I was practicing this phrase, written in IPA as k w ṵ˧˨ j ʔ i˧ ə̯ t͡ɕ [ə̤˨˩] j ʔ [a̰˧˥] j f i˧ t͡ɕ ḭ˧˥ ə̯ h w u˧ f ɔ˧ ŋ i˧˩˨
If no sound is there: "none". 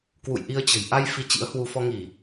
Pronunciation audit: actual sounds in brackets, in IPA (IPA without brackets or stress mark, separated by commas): ə̤˨˩, a˧